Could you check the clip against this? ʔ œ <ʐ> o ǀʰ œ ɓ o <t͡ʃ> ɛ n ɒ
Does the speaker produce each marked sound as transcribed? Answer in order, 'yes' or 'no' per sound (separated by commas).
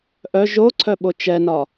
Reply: no, yes